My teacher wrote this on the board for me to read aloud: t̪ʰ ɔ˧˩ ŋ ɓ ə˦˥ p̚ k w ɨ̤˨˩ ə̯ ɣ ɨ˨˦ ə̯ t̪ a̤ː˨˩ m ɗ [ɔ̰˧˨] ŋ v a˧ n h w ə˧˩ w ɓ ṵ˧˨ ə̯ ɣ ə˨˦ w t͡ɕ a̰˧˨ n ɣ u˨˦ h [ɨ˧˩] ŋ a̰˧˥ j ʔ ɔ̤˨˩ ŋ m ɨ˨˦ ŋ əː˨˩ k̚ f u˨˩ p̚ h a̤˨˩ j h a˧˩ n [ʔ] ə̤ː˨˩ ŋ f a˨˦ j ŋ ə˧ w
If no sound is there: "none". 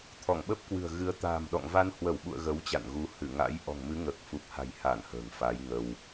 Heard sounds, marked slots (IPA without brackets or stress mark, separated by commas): ɔ̰˧˨, ɨ˧˩, h